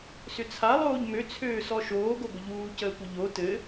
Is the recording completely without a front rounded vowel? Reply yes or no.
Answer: no